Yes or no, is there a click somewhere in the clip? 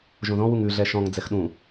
no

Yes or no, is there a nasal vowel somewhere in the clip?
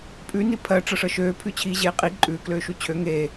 no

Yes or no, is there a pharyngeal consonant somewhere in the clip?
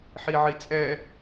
yes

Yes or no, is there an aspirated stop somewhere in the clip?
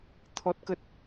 yes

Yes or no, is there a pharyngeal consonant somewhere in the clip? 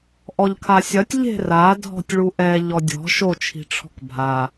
no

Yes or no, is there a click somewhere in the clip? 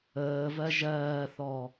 no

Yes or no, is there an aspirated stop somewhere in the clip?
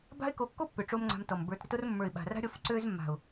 no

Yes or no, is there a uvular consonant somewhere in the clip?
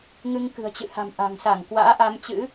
no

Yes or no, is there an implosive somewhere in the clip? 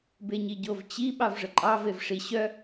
yes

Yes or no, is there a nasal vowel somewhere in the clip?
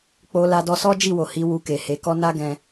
yes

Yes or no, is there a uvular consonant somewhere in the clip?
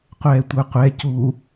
yes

